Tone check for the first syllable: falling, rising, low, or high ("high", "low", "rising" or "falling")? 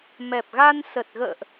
low